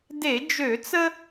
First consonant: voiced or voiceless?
voiced